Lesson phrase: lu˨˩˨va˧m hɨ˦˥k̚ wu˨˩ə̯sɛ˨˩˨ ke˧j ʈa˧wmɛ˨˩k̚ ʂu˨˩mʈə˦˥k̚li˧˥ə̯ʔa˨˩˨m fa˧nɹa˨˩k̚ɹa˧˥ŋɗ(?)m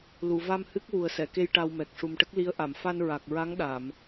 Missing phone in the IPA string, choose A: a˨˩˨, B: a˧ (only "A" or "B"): A